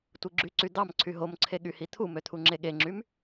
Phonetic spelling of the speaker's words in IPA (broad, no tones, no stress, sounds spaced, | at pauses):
tʷ ɯ ɡ͡ǁ y ǀ y d̪ ɑ m ǀʰ y ɦ o m ǀʰ e ɠ y h i t̪ʰ u m ø t̪ʰ u ŋ͡ǁ e ɠ e ŋ͡ǁ y m